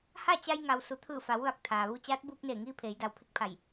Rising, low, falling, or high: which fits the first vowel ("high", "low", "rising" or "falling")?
falling